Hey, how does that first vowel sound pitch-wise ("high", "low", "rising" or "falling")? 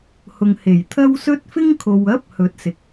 low